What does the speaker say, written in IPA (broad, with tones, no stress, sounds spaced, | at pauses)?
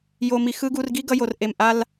j o˨ m i˨ x ɯ˦ ɡ u˧ r ɡ i˦ ɡ ʌ˧ j o˨ r ʔ e˨ m ʔ a˦ l